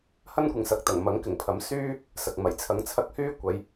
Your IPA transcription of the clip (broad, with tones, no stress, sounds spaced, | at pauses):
h ɐ˥ n kʷ ɪ˨ ŋ s ɐ˨˥ k̚ t̪ ɐ˨˩ ŋ m ɐ˨˥ ŋ k ɪ˨˩ ŋ pʰ ɐ˨˥ m s yː˥ | s ɐ˨ k̚ m ɐ˨˩ j t͡sʰ ɐ˨˥ ŋ t͡sʰ ɐ˧ k̚ h yː˥ kʷ ɐ˨˧ j